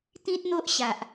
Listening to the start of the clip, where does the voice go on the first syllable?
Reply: high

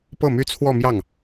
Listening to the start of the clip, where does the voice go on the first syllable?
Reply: falling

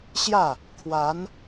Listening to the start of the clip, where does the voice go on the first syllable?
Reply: falling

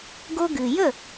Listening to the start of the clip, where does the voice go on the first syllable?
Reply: high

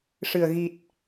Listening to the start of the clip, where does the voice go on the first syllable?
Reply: low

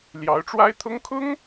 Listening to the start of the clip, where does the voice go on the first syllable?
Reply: rising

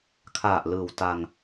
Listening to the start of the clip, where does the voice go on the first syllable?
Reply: low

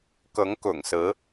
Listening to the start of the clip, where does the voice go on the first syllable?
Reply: rising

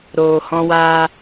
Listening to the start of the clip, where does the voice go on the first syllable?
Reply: low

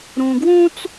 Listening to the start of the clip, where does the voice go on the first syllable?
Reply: low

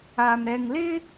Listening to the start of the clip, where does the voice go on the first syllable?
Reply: low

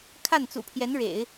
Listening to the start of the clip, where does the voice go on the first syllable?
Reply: falling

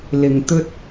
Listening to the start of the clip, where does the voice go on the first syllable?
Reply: low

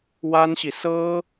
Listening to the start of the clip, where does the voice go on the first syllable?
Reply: high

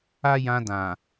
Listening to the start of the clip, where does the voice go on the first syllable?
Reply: high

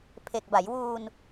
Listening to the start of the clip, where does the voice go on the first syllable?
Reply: low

